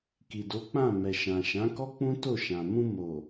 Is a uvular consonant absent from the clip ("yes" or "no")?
yes